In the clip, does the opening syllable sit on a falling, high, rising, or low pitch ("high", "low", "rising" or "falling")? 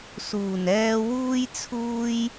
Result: low